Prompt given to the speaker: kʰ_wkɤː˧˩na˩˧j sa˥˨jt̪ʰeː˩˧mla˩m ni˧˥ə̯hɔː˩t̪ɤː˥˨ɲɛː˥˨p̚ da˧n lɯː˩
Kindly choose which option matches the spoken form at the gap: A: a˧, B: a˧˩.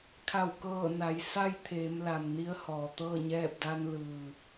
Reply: B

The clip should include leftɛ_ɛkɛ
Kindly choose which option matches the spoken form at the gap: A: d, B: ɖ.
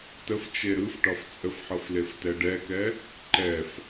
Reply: B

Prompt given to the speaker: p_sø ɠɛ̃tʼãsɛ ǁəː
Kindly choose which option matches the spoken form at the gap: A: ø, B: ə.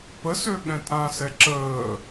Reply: B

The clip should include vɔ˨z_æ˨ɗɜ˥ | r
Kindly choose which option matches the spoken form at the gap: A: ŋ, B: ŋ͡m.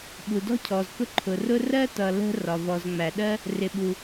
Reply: B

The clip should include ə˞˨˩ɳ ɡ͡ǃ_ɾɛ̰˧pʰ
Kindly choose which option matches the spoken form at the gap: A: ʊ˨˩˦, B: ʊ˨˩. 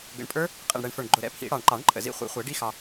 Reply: B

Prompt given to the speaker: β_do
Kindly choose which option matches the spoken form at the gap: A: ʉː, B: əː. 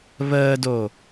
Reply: B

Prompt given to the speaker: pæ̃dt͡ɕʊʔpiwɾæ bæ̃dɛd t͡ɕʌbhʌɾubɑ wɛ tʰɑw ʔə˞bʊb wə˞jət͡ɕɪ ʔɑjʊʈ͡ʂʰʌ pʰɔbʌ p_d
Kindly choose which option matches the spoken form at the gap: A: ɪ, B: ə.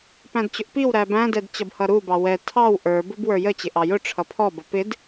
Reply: A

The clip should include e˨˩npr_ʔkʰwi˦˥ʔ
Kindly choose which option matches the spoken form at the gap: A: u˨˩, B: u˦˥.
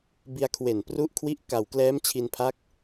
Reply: B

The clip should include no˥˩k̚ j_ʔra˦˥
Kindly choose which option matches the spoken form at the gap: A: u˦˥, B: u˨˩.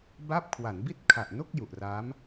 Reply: B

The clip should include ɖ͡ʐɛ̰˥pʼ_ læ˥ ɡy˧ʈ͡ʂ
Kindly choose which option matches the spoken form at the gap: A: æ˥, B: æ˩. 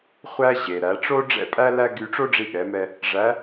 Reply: A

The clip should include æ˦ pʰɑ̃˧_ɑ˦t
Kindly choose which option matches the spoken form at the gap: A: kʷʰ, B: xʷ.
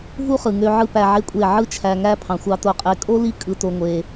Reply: B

